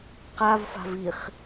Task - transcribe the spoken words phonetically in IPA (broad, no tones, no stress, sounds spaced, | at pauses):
q a v f a̤ v i χ